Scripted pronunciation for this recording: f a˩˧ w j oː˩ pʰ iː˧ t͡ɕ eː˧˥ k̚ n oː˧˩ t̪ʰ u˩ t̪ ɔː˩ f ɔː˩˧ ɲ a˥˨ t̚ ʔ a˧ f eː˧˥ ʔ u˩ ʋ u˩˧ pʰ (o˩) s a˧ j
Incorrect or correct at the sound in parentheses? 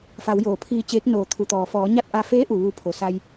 correct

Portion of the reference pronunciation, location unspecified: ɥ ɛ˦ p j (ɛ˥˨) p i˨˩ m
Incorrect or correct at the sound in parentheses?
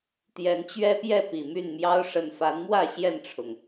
correct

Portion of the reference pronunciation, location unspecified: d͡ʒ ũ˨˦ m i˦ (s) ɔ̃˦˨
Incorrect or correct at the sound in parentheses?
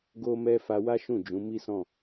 correct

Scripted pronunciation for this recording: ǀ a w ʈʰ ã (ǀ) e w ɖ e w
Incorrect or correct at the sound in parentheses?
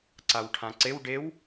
correct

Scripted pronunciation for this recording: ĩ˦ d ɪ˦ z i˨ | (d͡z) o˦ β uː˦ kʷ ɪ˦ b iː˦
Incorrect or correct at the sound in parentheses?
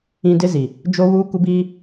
incorrect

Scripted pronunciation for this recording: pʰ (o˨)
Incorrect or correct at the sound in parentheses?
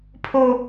incorrect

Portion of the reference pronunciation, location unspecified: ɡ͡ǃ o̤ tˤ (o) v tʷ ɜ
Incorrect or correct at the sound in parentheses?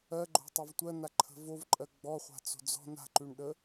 correct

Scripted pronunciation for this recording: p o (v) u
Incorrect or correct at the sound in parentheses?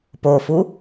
incorrect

